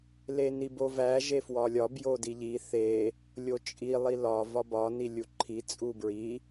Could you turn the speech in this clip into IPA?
l e n i b o v æ ʒ e f w ɒ lʲ ɒ b j o d i ʎ i θ e | lʲ o t͡ʃʼ i lˠ i l ɒ v ɒ b ɒ n i lʲ u ǃʰ i t͡sʼ u b ɹ i

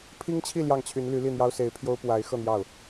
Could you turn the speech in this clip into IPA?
pʰ i˥ ŋ t͡ɕʰ i˥˧ l j ɑ˥˩ ŋ t͡ɕʰ y˧˥ n l y˧˥ l i˥˩ n̪ j ɑ˥ ʊ̯ s e˧˥ ɪ̯ pʰ j o˥ ʊ̯ p w a˧˥ ɪ̯ x ɤ˥˧ n̪ j ɑ˥˩ ʊ̯

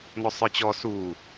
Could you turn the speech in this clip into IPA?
n ɔ sˤ ə˞ t͡ɕ ɔ s u

